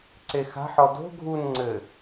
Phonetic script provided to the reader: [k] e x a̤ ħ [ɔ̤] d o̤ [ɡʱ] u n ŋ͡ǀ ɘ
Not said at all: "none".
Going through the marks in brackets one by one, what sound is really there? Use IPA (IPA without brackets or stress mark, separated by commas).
ǀ, ɔ, ɡʱ